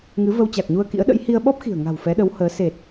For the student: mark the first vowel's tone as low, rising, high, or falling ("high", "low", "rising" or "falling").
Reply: rising